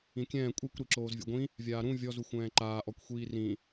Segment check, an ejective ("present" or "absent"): present